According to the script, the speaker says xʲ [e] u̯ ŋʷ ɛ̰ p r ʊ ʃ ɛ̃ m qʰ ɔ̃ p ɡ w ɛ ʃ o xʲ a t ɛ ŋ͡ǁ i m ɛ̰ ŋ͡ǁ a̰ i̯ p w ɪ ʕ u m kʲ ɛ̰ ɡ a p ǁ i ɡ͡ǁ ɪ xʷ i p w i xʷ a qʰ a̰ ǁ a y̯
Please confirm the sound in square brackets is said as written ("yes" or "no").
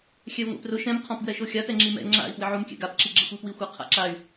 no